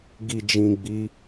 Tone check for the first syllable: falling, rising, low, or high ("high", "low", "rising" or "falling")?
low